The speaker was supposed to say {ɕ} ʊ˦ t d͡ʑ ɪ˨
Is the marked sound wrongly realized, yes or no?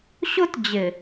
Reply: no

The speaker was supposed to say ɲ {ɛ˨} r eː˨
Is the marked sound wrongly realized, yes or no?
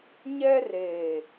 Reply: yes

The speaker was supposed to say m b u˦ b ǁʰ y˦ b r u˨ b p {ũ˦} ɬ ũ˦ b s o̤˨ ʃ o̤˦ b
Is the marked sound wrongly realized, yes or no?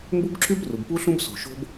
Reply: yes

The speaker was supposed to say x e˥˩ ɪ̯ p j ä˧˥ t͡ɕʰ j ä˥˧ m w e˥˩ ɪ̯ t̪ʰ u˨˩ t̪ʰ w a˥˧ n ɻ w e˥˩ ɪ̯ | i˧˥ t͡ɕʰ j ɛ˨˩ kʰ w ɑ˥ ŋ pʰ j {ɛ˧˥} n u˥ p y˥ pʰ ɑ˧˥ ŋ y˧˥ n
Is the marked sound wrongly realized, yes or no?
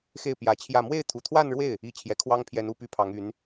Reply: no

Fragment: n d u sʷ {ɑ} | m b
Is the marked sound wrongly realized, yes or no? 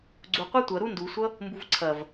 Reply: yes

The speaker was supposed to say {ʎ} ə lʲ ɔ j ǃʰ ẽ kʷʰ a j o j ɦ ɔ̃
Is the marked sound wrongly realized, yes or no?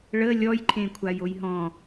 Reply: yes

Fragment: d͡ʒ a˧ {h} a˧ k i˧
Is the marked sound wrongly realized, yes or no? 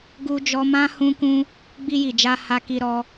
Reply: no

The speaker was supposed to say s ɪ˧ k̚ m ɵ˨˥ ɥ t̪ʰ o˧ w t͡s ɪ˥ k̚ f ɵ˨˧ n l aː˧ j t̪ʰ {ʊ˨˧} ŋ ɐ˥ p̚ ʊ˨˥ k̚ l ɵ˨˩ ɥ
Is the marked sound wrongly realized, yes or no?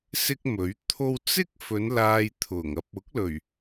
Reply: yes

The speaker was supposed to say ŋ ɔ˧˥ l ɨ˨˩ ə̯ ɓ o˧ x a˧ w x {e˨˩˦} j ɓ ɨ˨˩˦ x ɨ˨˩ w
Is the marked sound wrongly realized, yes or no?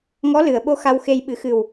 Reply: yes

